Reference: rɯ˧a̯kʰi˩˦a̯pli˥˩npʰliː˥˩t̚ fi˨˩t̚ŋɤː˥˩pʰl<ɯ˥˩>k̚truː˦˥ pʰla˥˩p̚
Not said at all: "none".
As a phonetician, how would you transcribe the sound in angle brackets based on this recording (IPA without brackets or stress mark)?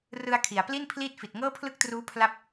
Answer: ɯ˥˩